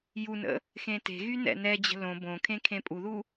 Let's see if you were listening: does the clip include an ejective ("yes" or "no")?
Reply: yes